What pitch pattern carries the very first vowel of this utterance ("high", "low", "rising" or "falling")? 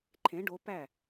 rising